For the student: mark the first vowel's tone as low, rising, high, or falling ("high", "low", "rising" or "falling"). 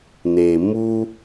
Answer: low